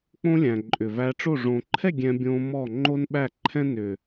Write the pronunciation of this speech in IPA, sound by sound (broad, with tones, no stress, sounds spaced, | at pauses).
k͡p õ˦ lʲ æ̃˨ ǃʼ ʏ˨ v æ˧ ʈ͡ʂ o˦˨ ʐ õ˨ ǃʰ ɛ˦˨ ɡʲ ɛ̃˧ bʲ õ˧ m ɔ˦˨ ŋ͡ǃ o˦ n ɓ æ˦˨ ǃʰ ɛ̃˦ n ʏ˨